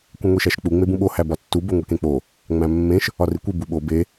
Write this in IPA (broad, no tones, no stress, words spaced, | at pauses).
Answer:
kʷẽŋʷiʃæʃk͡pu ŋ͡mebũɓo hæbɒtːu boŋʷikẽk͡po | ŋ͡mæ̃mːẽʃ | ɒrikʷi buɓo be